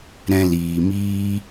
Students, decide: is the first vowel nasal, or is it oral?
nasal